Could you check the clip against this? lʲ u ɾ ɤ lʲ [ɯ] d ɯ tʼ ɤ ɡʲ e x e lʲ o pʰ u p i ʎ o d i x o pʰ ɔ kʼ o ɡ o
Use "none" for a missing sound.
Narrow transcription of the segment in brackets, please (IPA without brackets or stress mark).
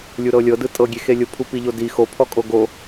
ɤ